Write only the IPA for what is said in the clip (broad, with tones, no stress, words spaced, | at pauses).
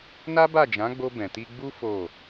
na˦ba˦˨d͡ʒã˨˦ɡ͡bo˧ bɛ̃˨ti˧ɡ͡bu˦ fo˦˨